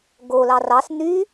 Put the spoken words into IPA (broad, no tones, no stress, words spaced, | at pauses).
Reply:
ɡolɑ rɑs n̪y